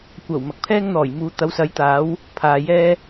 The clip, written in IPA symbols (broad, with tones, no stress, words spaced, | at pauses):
kʷɐ˨˩w mɐ˨k̚pʰɛː˥ŋn̪ɔː˨˩j muː˨˧t̪ɐ˨˥w sɐ˨˥jt̪aː˨˥w | pʰaː˨jɛː˥